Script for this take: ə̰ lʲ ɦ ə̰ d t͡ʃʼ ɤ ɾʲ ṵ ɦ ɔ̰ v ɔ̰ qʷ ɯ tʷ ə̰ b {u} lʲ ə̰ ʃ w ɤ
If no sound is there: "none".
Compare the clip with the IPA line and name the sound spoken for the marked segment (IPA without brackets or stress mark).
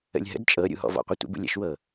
ṵ